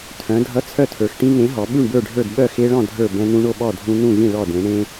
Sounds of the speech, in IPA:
tʰ œ̃˩˧ dʱ ʌ˨˥ t͡sʰ œ˥˨ tʰ ə˞˩˧ x ʈ ĩ˦ ŋ ẽ˨˥ ɦ ɔ˩˧ ɓ ʉ˥˨ ɳ b ə˞˥˨ ɖʱ ə˞˥˨ d ɓ œ˥˨ x e˦ ɭ ɔ̃˥˨ dʱ ə˞˥˨ b ɛ̃˦ n ũ˦ ɳ o˥˨ ɓ ɔ˥˨ dʱ ũ˦ n ũ˥˨ ɣ ĩ˥˨ ɭ ɔ˥˨ d ẽ˨˥ ɳ ẽ˦

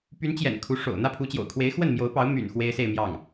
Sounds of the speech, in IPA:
p y˧˥ n t͡ɕ j ɛ̰˨˩ n kʰ u˧˥ ʂ o̰˨˩ ʊ̯ n̪ ä˥˩ pʰ u˧˥ t͡ɕ j o̰˨˩ ʊ̯ kʰ w e˧˥ ɪ̯ x w ə˥˩ n m j o˧˥ ʊ̯ p ɑ˧˥ ʊ̯ m y̰˨˩ n x w e˥ ɪ̯ s e˥˧ ɪ̯ m j ɑ˥˩ ŋ

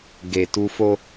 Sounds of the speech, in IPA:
ɡ e˨ t u˧ f o˦

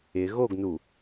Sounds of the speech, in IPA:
ɪ ɣ o ɡ n u

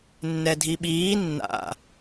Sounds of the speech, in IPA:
nː ɛ dʱ i ɓ iː nː a̰

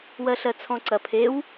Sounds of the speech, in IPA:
w ɜ ɬ ɜ t͡sʰ ɔ̃ ǀ ɐ pʰ e w

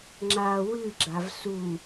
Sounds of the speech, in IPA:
ŋ͡ǁ a w ɨ ɡ͡ǁ a v s u

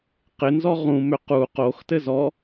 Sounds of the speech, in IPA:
q ɪ n z ɔ ʁ ũ m ʏ q u q o x t ɘ z ɔ

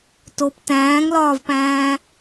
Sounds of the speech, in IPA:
t o p t æ̃ː ŋ l ɒː v p æ̃ː

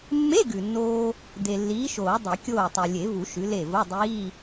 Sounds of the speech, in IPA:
mː e˧˥˧ ɡ ʉ˨ nː oː˥ | d e˨ lː iː˨˥ ʃ oː˨˩˦ dˤ i˨˩˦ kʲ oː˥˨ tˤ o˨ lʲ e˨˩˦ v u˨˩˦ ʃ ʉ˨˥ l e˥˨ v o˧˥˧ dˤ iː˧˥˧

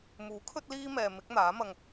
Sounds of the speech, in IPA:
m uː˨˥ kʰ ɵ˥ t̚ l iː˥ m ɛː˨ m ɪ˨˥ k̚ n̪ aː˨˥ m ɐ˧ ŋ

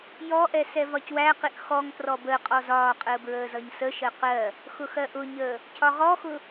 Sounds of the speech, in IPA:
j ɔ ʔ ɛ s ɛ v ɒ c w æ q ɪ ʔ x ɔ ŋ t r ɔ b ə qʼ ɔ z ɒː qʼ əː b ɹ əː z ʌ ɲ s ə ʃ ɜ q ɜ | x ʊ x ɜ ʔ ʊ ɲ əː | cʰ ɒ ʁ ɔ x ʊ

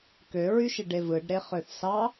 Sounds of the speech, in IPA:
k ø ɹ y ʃ i ɖ e v ɯ ɖ ɾ e χ ø θ s ɑ

